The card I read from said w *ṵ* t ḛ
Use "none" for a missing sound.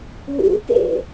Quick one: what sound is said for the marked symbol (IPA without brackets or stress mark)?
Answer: ṵ